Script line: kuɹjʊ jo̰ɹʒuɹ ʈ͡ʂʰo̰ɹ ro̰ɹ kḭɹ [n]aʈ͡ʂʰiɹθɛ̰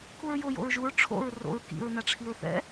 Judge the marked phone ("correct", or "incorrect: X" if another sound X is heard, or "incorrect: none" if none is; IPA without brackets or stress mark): correct